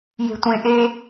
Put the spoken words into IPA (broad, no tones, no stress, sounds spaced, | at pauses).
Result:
j e̤ tʷ ẽ ʔ e